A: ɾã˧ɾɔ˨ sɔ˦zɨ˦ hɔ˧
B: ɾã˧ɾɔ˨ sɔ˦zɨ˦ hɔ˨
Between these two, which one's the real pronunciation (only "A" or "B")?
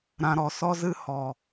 B